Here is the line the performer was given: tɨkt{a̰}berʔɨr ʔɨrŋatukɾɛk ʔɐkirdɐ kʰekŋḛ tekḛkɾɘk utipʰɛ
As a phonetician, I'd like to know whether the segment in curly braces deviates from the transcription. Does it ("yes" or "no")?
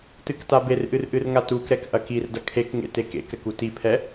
yes